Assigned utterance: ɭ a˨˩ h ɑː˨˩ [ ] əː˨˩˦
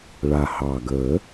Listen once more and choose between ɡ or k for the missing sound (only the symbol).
ɡ